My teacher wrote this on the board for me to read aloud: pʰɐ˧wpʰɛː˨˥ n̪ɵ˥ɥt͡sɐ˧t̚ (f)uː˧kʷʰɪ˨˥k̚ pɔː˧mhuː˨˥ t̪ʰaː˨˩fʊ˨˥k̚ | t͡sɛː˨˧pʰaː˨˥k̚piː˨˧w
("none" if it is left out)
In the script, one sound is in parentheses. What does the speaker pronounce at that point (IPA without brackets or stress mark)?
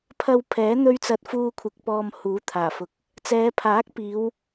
f